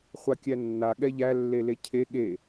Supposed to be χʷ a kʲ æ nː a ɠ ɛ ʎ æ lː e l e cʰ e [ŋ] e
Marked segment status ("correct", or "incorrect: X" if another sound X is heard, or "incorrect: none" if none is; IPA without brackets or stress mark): incorrect: ɠ